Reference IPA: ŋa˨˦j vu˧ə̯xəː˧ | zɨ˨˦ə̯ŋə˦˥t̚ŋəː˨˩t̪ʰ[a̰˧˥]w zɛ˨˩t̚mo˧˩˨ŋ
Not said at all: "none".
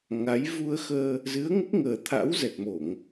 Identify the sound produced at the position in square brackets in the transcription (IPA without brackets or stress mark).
a̰˧˥